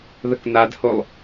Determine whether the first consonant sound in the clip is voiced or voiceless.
voiced